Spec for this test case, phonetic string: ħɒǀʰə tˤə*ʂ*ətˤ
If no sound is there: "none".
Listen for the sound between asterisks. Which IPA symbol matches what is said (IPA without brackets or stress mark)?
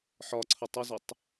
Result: z